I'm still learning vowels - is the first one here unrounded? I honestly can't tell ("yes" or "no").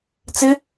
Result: yes